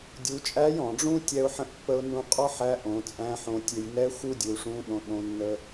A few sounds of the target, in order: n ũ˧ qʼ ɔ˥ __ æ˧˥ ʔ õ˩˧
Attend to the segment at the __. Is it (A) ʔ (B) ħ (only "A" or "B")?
B